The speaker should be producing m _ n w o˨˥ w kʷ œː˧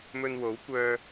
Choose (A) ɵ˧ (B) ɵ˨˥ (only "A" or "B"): A